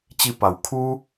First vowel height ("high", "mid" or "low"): high